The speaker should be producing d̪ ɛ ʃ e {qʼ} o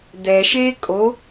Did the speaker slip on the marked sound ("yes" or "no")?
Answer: yes